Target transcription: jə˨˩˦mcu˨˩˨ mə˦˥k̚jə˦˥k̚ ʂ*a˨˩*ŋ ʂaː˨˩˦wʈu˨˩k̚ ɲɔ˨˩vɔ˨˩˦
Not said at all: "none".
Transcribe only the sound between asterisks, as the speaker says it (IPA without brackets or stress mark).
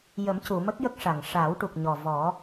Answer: a˨˩